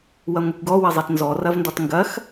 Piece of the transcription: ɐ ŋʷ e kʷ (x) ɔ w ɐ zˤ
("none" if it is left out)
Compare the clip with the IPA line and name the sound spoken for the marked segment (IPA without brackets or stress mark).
ɡ